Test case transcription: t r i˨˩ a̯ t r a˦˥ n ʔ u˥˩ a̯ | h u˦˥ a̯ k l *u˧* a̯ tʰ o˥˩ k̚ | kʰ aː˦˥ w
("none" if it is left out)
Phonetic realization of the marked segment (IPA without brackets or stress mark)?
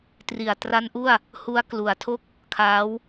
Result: u˩˦